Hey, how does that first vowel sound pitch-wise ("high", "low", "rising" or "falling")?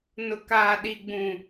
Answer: low